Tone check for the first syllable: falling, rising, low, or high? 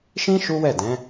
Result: high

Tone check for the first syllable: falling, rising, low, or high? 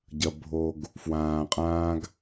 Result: low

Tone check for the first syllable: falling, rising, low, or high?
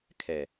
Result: low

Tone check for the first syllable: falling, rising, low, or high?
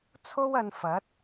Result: high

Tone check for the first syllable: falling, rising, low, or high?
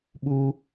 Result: high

